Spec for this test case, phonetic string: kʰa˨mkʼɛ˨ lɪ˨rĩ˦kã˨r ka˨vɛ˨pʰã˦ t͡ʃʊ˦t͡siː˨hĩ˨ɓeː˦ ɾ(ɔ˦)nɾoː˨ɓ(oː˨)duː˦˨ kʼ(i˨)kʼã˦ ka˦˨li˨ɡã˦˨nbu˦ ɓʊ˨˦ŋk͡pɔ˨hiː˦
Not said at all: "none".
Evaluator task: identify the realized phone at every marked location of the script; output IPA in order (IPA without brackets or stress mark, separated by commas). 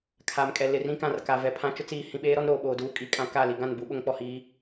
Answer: ɔ˦, oː˨, i˨